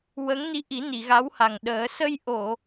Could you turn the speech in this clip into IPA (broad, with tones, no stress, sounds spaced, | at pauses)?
w ə˧˥ ŋ n i˧˥ ʔ i˨˩˦ n i˨˩˨ ɣ a˧˥ w h a˨˩ ŋ ɗ əː˨˩˦ s ə˧ j ʔ o˨˩˨